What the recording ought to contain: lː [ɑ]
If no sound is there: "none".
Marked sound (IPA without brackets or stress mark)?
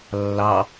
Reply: ɑ